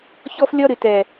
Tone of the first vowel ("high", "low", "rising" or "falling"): high